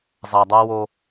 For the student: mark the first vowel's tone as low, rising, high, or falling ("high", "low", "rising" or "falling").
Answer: low